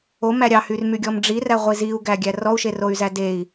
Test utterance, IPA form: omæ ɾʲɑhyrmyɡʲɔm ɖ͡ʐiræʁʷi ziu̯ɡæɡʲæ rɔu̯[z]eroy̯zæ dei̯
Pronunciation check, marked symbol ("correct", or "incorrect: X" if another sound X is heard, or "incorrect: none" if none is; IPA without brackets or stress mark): incorrect: ʃ